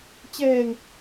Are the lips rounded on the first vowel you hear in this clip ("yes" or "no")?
no